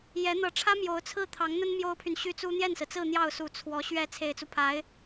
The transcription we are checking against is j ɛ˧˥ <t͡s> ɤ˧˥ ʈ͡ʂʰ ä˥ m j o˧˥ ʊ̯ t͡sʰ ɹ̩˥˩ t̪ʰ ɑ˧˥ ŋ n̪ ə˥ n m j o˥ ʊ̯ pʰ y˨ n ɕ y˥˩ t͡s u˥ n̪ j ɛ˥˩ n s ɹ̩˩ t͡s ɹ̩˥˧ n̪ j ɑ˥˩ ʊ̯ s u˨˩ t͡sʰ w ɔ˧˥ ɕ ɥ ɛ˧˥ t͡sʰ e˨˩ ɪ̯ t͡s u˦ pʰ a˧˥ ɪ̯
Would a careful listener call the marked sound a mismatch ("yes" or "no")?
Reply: yes